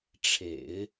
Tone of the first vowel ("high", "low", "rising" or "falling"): low